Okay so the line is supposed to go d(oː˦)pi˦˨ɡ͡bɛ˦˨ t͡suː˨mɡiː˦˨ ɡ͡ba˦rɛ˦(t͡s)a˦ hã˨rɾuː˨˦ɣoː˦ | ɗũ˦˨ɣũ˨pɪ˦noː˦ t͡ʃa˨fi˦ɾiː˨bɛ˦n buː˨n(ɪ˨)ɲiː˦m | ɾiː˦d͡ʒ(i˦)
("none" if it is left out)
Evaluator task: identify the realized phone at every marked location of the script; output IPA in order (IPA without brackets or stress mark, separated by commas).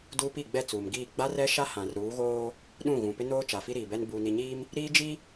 uː˦, ʃ, i˨, i˦